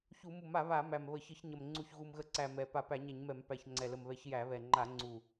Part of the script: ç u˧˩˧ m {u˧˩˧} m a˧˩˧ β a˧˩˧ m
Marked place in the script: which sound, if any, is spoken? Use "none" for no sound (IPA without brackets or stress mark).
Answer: u˧˩˧